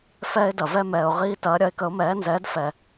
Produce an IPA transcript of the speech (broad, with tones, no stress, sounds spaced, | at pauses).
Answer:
f ɛː˦ ɪ̯ d ɐ˩ v ɛ˦ m ɛː˩ ʊ̯ ʁ iː˦ t ɐː˩˥ ɾʲ ɐ˩˥ ɪ̯ k ə˩˥ ʊ̯ m ɛː˩˥ n z ɛː˩˥ d f ɛ˩